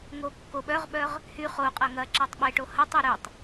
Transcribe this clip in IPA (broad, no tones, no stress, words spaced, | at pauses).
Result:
ŋokːoɓœʁɓœʁ | hyχ oqʼɐ ŋɐǁɐtˤ ɓeʈo hɐtˤy ɾytˤ